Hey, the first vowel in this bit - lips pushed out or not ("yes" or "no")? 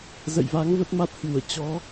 no